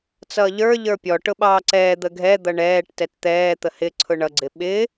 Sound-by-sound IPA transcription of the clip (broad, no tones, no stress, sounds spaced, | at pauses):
t͡s ʌː ʎ ə˞ ʎ ə˞ pʲ ɔ ʈ ʊ ɓ ɑː ǀ ɛː d̪ ə ɡʱ ɛ d̪ ʌ ɳ ɛː ʈ t ɛ t t̪ ɛː t̪ ə h ɪ ǀʰ ʊ ɳ ʌ ɡ͡ǀ ɪ ɓ ɪ